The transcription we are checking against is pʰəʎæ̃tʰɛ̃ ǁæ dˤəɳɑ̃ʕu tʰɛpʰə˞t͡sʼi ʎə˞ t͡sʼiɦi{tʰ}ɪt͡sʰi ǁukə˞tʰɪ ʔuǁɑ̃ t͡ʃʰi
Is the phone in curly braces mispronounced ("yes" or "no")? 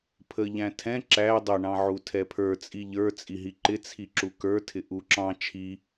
yes